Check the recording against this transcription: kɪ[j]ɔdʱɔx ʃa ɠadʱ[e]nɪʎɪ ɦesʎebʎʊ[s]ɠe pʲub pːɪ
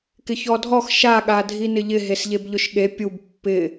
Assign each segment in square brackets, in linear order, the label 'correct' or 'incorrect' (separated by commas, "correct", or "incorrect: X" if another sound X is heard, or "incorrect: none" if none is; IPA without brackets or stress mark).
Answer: incorrect: ç, incorrect: i, incorrect: ʃ